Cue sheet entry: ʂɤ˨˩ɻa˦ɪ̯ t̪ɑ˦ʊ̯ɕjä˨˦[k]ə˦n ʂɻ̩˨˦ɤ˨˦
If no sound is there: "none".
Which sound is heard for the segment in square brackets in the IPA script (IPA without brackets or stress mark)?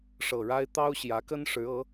k